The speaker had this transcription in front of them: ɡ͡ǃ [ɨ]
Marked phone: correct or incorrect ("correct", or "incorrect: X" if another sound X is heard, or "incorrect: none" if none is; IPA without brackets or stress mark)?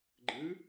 correct